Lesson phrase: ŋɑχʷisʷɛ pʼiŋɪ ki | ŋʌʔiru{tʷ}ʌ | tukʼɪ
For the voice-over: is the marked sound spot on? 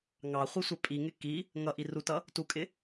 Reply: no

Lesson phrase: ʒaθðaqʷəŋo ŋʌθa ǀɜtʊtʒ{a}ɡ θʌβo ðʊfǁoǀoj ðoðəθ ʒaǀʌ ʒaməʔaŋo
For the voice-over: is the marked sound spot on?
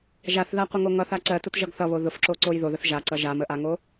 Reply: no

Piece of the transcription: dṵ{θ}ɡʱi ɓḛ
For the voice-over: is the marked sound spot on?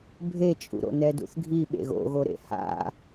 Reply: yes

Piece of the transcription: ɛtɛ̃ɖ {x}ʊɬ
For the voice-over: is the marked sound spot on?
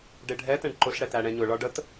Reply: no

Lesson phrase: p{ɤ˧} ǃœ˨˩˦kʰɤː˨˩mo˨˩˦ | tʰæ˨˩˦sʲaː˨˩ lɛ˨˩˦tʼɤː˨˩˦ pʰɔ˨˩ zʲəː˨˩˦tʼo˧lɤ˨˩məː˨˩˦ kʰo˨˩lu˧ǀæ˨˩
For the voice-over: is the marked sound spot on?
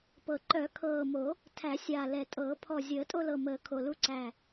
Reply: no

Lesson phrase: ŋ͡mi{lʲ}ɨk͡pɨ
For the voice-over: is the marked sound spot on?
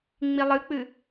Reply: no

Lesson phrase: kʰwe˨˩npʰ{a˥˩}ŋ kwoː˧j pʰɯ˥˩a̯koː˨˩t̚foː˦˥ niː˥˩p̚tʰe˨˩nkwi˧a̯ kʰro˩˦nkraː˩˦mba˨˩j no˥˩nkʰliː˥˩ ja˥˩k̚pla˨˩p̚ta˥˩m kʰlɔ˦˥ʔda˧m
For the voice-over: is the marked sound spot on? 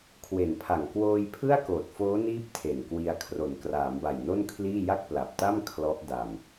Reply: no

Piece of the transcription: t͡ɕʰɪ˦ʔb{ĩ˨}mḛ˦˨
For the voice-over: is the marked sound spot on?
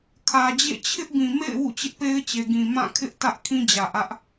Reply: yes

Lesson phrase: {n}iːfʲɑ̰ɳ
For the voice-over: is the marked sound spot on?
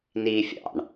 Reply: yes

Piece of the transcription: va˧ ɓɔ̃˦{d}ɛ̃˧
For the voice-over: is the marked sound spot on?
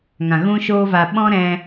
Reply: no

